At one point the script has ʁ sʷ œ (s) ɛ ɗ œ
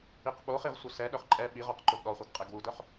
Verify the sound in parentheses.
correct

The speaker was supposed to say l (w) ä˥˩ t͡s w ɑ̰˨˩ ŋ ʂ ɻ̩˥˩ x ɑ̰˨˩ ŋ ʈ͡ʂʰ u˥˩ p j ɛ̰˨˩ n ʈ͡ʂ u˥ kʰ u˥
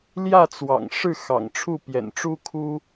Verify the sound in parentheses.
incorrect: j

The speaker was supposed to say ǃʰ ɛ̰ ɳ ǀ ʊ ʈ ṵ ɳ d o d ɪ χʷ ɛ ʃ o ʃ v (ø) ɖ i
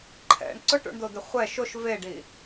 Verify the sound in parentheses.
incorrect: e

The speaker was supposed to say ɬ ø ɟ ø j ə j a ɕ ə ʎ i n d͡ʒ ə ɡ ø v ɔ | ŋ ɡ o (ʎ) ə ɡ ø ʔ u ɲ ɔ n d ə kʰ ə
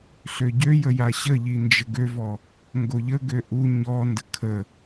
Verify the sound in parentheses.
correct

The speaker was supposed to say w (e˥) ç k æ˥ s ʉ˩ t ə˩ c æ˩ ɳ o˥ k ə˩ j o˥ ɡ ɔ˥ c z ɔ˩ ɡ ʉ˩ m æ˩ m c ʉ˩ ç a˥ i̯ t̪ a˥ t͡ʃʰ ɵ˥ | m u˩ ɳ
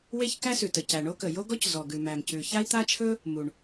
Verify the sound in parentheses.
correct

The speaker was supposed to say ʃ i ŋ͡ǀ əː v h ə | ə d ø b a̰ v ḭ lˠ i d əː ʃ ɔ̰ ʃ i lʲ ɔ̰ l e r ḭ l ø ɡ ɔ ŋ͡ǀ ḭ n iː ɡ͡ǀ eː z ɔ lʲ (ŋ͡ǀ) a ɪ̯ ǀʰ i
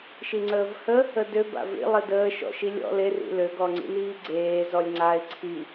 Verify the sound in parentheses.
correct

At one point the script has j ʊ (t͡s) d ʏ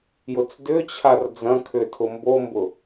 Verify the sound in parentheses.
correct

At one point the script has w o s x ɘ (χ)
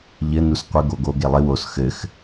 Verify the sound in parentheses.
incorrect: x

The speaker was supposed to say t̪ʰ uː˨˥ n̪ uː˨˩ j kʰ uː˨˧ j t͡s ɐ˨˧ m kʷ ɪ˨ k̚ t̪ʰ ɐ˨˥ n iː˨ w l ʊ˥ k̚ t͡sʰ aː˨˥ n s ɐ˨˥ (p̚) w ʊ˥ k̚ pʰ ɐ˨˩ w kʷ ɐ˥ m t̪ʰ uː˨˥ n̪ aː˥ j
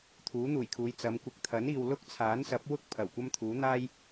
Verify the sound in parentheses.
correct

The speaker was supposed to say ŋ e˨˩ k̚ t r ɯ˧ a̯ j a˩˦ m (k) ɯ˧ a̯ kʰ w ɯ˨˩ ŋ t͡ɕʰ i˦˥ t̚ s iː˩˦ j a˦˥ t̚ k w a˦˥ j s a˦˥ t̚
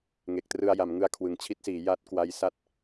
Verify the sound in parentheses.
incorrect: ŋ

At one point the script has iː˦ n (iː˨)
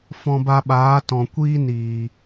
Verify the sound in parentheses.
correct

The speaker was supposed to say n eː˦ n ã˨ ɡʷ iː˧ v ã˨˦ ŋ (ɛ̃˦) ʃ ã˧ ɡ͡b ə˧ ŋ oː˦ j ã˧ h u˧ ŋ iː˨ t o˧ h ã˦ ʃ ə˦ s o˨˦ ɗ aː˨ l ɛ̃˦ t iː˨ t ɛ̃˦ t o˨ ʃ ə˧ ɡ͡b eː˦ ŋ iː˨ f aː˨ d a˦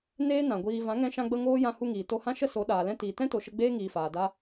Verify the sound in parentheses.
incorrect: ɛ̃˧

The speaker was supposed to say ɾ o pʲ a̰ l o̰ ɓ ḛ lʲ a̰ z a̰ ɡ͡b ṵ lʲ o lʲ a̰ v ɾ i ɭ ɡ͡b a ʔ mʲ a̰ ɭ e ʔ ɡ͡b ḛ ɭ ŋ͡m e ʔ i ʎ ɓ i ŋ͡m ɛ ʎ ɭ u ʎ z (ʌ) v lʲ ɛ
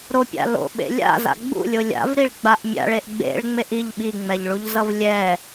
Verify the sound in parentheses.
correct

